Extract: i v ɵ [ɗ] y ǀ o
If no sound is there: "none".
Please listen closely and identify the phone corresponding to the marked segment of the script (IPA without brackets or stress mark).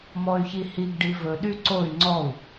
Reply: ɗ